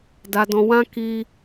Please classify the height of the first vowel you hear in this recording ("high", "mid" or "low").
low